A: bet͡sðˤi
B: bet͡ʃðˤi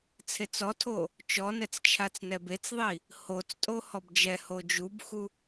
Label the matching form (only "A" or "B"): A